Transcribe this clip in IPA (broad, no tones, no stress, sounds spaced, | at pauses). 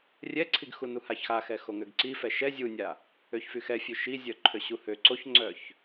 rʲ ɛ ǀʰ i ɡ x u n u h a ç x a x ɛ x o ŋ ø ɡ ǀ i f ɛ ʃ ɛ zʲ u nʲ a | ø ç f y x ɛ fʲ ø ʃ i zʲ œ ǃʰ ø ɕ u h ø ǀ o ç ŋ͡ǀ œ ç